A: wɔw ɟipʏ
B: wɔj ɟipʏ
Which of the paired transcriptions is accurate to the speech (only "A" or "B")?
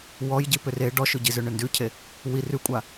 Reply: B